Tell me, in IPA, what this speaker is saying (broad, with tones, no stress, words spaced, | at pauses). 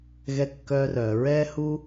ɣɛ˧kːœː˧rœː˩ ɹɛː˥ hu˥